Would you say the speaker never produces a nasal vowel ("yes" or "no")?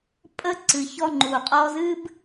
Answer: yes